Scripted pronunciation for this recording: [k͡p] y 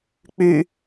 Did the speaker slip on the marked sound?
no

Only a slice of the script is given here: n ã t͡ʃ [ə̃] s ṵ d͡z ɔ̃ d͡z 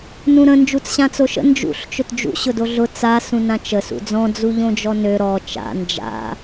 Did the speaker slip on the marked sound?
yes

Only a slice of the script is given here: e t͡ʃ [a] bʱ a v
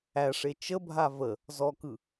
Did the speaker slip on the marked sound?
yes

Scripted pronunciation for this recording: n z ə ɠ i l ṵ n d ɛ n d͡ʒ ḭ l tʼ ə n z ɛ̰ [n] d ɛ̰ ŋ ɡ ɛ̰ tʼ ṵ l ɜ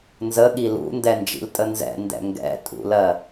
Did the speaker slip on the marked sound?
no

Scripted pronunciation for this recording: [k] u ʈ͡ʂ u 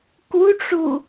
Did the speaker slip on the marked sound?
no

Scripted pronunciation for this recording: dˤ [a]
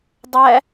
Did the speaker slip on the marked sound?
yes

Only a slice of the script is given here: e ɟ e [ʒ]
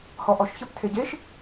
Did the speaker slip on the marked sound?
yes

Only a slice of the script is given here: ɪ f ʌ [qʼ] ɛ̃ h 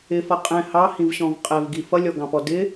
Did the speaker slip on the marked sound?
no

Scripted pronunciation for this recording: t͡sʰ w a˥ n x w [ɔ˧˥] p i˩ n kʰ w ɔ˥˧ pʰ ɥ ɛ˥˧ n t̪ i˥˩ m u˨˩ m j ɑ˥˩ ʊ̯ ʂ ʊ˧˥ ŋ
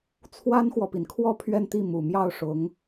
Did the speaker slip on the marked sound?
yes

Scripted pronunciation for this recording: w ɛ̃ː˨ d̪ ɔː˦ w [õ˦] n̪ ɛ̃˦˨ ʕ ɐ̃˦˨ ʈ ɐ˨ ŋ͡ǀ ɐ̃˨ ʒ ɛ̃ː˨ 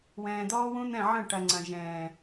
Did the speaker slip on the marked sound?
yes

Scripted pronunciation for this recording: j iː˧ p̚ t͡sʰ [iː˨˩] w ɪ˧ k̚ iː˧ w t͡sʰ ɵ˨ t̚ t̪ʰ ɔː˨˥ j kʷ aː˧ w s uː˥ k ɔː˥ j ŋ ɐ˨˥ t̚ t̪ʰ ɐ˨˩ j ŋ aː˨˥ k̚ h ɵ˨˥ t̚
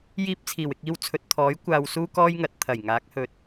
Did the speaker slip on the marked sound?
no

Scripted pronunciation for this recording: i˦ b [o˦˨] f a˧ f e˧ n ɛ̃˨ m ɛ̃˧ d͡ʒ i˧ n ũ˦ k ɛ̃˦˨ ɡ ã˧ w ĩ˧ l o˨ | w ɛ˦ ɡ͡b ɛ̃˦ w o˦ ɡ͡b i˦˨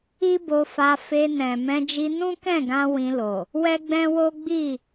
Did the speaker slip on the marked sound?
yes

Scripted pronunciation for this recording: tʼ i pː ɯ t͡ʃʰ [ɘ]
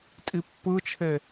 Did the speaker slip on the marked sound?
yes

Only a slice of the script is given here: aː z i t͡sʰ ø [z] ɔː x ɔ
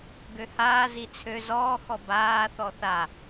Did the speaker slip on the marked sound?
no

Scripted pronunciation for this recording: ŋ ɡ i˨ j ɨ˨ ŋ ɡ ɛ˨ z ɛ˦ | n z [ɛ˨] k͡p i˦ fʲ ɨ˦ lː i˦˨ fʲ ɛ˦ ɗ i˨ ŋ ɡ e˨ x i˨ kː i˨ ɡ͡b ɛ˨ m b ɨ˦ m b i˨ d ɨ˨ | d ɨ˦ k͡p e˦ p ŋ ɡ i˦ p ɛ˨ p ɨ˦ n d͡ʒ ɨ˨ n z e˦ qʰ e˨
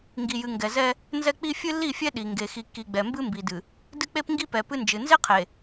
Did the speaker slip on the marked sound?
yes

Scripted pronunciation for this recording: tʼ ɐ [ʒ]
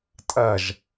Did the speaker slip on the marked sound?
no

